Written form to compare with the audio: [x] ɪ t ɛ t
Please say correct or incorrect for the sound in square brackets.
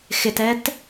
correct